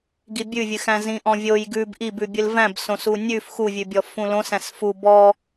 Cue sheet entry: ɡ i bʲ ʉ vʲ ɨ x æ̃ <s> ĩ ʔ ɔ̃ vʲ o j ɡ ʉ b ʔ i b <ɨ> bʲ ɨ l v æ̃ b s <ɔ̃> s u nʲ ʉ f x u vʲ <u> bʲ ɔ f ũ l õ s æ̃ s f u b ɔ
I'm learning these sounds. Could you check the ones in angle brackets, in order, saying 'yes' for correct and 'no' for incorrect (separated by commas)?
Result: no, no, no, no